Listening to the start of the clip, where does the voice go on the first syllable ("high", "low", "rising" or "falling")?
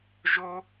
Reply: high